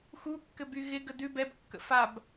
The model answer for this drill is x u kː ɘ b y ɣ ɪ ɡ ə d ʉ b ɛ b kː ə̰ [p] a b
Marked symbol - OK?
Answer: no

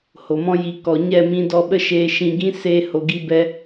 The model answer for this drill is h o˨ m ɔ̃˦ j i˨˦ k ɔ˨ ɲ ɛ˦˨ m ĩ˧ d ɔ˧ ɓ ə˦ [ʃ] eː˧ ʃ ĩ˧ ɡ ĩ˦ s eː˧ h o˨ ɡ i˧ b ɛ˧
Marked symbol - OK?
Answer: yes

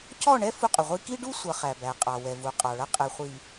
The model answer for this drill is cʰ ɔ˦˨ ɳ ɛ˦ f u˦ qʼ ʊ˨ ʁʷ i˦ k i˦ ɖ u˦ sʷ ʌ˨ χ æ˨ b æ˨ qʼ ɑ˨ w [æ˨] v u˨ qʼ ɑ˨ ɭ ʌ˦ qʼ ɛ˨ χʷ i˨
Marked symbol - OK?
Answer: no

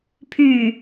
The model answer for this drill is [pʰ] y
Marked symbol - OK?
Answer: yes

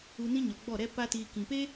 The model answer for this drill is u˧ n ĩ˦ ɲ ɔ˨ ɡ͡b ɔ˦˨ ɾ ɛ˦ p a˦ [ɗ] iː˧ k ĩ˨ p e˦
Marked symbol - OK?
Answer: no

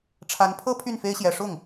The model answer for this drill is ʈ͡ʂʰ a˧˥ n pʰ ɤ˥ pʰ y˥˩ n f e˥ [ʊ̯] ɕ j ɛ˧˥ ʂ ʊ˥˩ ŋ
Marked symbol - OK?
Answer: no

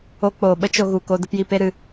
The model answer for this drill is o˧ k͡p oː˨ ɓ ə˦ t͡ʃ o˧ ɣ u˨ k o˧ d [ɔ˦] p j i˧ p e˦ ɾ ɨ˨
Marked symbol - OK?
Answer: no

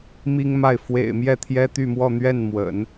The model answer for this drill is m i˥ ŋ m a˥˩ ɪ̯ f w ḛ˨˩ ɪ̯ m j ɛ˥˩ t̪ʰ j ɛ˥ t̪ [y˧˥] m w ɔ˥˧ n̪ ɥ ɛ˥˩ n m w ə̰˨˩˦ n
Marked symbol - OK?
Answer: no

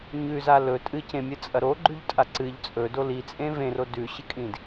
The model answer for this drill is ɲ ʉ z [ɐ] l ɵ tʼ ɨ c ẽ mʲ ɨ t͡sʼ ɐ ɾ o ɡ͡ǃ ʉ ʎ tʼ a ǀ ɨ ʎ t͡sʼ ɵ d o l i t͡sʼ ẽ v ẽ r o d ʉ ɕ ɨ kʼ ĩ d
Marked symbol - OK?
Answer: no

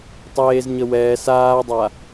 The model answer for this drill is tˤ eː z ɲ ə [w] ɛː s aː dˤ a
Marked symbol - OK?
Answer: yes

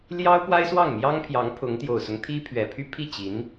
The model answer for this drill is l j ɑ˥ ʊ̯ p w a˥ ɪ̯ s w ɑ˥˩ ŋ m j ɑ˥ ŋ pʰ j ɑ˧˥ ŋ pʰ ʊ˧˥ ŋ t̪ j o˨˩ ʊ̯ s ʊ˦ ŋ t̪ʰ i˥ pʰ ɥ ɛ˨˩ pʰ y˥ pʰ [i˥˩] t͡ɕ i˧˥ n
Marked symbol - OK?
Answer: yes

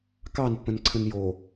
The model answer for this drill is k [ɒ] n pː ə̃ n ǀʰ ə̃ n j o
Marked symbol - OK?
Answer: no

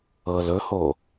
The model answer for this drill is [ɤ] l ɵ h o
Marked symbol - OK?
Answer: yes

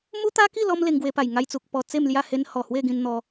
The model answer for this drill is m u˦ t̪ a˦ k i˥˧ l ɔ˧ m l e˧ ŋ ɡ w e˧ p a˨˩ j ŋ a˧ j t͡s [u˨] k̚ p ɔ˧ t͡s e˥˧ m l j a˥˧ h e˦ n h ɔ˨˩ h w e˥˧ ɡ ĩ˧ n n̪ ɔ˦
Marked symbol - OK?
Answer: yes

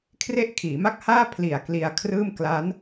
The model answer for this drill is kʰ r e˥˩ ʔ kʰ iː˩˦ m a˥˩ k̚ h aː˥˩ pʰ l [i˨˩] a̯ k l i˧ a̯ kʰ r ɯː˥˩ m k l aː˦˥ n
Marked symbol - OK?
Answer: yes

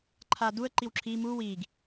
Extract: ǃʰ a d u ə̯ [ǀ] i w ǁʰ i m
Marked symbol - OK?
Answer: no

